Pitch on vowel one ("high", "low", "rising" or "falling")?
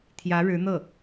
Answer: rising